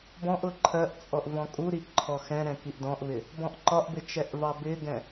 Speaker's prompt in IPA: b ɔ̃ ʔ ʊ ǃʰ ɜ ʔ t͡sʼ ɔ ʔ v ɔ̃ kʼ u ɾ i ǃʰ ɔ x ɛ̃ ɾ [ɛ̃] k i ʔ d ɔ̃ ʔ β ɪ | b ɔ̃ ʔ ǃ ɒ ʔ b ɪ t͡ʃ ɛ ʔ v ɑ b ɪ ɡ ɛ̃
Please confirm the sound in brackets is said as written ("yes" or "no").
yes